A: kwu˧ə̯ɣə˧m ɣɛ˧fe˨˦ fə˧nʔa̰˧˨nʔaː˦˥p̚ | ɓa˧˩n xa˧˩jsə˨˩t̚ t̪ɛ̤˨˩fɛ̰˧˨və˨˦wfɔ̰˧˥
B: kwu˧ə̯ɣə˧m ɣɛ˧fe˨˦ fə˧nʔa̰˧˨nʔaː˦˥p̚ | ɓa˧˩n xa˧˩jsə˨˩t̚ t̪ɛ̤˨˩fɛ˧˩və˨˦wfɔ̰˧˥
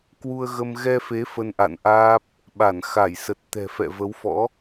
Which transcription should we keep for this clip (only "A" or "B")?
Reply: A